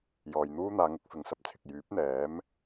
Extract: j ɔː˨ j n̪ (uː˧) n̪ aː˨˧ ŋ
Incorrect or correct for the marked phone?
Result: incorrect: uː˥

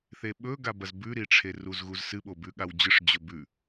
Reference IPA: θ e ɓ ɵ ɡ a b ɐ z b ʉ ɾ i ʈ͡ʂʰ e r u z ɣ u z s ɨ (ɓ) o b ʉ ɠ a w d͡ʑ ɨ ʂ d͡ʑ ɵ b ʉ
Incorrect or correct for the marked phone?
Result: correct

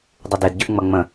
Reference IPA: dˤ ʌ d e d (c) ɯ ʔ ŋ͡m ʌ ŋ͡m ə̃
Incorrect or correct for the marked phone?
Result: incorrect: ɟ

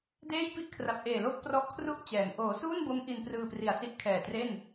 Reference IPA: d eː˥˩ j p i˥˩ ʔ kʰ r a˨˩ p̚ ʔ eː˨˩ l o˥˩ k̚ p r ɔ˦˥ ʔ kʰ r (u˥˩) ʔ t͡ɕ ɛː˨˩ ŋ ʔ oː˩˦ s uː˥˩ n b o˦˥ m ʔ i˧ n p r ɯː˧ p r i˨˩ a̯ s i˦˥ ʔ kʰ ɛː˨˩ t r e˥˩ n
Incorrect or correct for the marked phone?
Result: correct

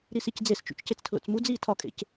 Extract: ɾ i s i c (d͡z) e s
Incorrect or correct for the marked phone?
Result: correct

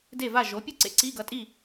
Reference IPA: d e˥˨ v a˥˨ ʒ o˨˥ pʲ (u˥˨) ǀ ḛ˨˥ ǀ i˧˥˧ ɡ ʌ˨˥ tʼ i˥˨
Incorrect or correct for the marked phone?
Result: correct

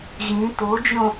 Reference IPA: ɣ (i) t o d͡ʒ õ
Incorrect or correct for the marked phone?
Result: incorrect: ĩ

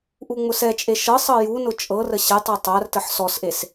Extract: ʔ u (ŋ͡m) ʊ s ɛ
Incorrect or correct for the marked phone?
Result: correct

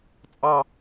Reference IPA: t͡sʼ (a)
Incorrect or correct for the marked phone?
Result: incorrect: ɑ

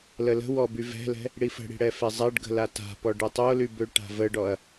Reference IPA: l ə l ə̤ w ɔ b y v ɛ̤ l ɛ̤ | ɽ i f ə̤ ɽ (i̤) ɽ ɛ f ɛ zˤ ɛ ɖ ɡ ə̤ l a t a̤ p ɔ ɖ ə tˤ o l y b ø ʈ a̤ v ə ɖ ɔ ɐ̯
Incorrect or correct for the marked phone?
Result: correct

